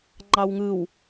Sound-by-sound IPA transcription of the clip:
ŋ͡ǃ ɑ w ŋ ɯ w

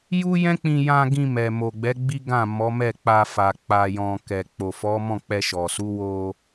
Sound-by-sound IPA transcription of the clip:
j u˦ j ɛ̃˦ k͡p ĩ˧ j ã˧ ɡ ĩ˧ m ɛ˨ m o˨ ɡ͡b ɛ˨˦ ɡ͡b i˦ ɡ ã˦˨ m ɔ˨˦ m ɛ˦˨ k͡p a˧ f a˨ k͡p a˨ j ɔ̃˨ k ɛ˨ k͡p o˨ f ɔ˨˦ m ɔ̃˦˨ k͡p ɛ˧ ʃ ɔ˨ s u˨˦ w o˧

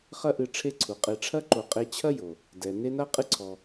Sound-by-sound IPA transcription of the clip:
χ ɐ˦ ʔ ɨ˨ ʈ͡ʂʰ e˦ ǀʰ u˩ qʼ e˨ ʈ͡ʂʰ ɐ˥ ǃ o˨ qʼ e˦ t͡ɕʰ ɐ˥ j o˩ | d ɛ˩ n e˦ n a˥ qʼ ɨ˥ ǀʰ ɔ˨

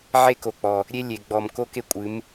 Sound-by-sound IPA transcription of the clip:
ʕ e˦ k o˨ k͡p ɔ˨ | ɾʲ e˦ lʲ e˨ ɡ͡b ɔ˨ m k o˦ k e˦ kʷʼ ɨ˨˦ m

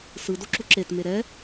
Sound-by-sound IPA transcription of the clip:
s ɯ d o ǁ u ǁ e t m e ɾ ɛ

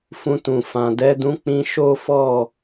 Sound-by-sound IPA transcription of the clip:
f ũ˧ t ũ˨ f ã˨ d ɛ˨˦ d ũ˧ k͡p ĩ˧ ʃ o˦ f ɔ˦˨

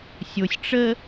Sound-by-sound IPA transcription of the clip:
sʲ o sʲ ʈ͡ʂ ə

